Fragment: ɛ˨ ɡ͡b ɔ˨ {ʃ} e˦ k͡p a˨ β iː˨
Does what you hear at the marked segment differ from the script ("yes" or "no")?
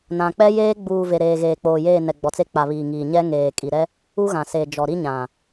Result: yes